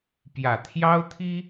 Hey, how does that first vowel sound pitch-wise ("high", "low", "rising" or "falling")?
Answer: low